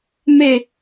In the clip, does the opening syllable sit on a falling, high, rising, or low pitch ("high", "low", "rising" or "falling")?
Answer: falling